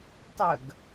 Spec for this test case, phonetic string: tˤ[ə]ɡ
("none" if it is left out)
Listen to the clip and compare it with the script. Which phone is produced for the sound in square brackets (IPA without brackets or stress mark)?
ə